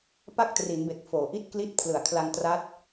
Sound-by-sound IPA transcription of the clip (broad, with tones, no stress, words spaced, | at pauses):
pa˥˩k̚tri˩˦nbe˨˩k̚foː˩˦ ʔi˦˥t̚kli˦˥t̚ pʰlɯ˨˩a̯kʰla˧ŋ tra˦˥t̚